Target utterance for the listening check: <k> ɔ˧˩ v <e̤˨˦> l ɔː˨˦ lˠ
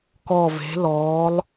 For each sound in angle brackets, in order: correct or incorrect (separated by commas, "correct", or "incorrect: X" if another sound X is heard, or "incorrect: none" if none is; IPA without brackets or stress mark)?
correct, correct